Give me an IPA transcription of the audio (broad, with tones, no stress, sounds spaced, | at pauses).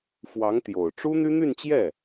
f w ɑ˧˥ ŋ t̪ j o˨˩ ʊ̯ ʈ͡ʂ u˥ n̪ y˥ n̪ y˥˧ n t͡ɕ j ɛ˥˩